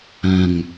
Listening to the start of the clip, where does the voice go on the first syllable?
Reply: low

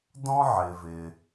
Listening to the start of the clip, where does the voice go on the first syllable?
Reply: high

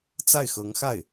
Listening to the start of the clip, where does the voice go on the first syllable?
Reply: falling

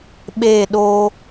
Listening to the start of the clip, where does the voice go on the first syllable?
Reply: falling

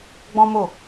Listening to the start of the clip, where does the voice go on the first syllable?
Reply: high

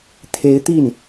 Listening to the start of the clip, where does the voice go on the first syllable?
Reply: rising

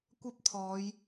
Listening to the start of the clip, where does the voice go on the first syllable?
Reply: high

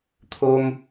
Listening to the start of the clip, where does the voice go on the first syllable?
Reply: high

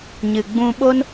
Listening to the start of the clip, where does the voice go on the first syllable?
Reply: low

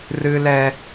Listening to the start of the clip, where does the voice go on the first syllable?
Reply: high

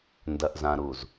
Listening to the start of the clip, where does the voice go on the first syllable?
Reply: low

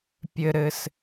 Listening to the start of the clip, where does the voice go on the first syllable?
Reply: high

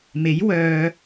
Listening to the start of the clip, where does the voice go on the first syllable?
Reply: rising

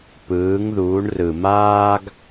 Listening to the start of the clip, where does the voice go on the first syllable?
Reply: rising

